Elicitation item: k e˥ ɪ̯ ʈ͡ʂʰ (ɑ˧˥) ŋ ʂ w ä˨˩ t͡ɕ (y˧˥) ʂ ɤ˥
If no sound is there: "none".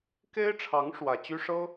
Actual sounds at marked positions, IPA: ɑ˧˥, y˥

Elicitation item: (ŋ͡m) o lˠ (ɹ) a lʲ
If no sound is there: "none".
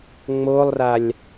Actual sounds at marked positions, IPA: ŋ͡m, r

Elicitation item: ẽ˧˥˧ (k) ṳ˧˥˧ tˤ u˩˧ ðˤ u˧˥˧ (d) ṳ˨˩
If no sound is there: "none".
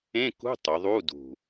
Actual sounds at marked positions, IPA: k, d

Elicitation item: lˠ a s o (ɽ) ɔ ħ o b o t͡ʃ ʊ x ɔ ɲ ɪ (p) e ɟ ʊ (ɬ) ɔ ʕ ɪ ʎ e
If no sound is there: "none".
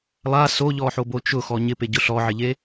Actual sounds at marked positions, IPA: ʎ, p, ɬ

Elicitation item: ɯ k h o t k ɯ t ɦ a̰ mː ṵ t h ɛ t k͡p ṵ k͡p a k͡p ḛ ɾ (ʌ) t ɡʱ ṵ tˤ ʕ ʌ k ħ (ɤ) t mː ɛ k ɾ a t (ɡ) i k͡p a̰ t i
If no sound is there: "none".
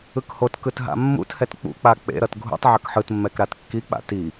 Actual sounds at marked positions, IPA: ʌ, ɯ, kː

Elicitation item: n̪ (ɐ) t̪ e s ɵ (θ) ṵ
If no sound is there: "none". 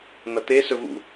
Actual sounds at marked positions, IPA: ɐ, v

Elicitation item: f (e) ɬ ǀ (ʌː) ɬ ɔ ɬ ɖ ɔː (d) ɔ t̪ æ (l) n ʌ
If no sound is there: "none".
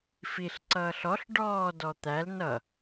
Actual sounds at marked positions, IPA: i, ʌː, d, l

